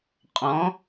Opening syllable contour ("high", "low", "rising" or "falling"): rising